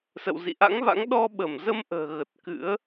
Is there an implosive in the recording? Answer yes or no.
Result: yes